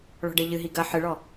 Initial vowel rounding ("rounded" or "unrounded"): rounded